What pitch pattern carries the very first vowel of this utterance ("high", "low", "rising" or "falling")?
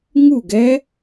falling